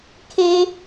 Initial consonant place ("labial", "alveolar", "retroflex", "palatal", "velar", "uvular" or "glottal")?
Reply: velar